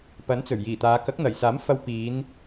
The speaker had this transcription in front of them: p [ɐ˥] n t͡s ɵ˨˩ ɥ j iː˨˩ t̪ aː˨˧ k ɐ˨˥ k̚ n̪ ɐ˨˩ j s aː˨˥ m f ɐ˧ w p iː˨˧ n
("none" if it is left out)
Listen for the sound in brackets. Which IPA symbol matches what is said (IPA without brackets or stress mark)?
ɐ˨˥